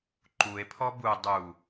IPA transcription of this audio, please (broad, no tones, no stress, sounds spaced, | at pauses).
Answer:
ǃ u e̯ pʰ ɔ b u dˤ u